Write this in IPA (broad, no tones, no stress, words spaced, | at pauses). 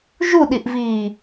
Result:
ʒuɗiʔviː